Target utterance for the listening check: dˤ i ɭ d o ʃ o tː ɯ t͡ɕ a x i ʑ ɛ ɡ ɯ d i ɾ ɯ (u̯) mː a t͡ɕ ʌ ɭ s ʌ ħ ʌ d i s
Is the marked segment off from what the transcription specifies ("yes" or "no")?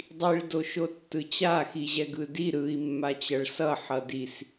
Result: yes